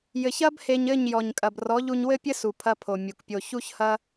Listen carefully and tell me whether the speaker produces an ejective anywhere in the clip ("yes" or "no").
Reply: yes